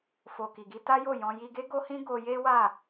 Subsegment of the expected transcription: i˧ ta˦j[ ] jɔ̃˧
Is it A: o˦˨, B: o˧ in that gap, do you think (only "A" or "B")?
A